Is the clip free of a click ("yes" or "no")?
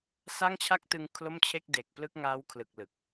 yes